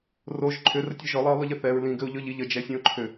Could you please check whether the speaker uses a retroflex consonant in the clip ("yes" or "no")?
no